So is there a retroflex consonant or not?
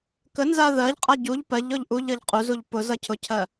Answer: no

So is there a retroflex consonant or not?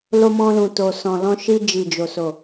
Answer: no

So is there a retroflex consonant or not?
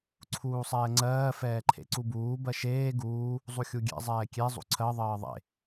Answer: no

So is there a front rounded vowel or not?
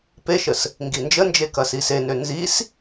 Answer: yes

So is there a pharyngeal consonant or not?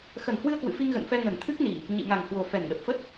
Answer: no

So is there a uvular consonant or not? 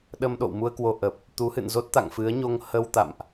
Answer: no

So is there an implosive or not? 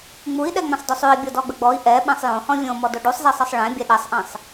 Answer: yes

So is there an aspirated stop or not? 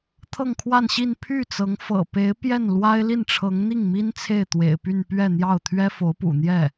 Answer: yes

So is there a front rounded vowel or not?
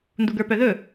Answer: yes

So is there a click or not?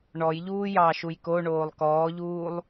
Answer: no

